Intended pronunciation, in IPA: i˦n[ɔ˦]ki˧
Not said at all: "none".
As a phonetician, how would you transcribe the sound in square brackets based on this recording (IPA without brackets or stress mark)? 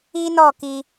ɔ˦˨